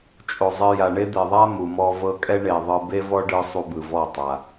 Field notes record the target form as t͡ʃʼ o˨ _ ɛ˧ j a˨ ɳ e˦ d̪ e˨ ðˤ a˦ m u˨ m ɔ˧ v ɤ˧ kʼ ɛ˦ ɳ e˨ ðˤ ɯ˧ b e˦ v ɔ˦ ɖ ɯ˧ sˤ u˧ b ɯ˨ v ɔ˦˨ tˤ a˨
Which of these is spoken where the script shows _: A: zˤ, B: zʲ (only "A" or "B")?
A